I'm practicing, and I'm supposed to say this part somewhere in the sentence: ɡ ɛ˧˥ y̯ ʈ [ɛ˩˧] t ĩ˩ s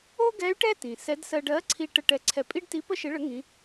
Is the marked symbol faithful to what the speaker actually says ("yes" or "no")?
no